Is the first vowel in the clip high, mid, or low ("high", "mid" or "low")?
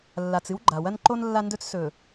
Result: low